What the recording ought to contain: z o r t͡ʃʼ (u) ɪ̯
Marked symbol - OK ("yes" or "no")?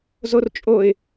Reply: no